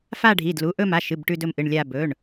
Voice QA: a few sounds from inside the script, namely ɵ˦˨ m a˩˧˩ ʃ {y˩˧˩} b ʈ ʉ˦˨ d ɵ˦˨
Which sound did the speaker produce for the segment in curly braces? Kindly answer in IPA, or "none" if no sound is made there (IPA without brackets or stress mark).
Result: ɨ˩˧˩